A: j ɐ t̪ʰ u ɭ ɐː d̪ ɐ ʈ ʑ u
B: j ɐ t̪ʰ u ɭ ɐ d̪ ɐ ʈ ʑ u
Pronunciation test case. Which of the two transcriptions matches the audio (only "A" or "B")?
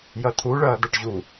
A